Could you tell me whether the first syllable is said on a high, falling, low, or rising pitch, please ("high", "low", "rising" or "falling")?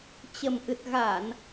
low